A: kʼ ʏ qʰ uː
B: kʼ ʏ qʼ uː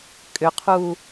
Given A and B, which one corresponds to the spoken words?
A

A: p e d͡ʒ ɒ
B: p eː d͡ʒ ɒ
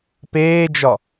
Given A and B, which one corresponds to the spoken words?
B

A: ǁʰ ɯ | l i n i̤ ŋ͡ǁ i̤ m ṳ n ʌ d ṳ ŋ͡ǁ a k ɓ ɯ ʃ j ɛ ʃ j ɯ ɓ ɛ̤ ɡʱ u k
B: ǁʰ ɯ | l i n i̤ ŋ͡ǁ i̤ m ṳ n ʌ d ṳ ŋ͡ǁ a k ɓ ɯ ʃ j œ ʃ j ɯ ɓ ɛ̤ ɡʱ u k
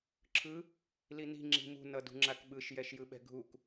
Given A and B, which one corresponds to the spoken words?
A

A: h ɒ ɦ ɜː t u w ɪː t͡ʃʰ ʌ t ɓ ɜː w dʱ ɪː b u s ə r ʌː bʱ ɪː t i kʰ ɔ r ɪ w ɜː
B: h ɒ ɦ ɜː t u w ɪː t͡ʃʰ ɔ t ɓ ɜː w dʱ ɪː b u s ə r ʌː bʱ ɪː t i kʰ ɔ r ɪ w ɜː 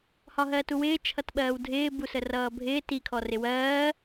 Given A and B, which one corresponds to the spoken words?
A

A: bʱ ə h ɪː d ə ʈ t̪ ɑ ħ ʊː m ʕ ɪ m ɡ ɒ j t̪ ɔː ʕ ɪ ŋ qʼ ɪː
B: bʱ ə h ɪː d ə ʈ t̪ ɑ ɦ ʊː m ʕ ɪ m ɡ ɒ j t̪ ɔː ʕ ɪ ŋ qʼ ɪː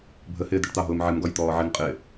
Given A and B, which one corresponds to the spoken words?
B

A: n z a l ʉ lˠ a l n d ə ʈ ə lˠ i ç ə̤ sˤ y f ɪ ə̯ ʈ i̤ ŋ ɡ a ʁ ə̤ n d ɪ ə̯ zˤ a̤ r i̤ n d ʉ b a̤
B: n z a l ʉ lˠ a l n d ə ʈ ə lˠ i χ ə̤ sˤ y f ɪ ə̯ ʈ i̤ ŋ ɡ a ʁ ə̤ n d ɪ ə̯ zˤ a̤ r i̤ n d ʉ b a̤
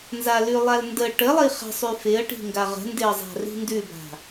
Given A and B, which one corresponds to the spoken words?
B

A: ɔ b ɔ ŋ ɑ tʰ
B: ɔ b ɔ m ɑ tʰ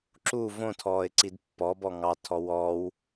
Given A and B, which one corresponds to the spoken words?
A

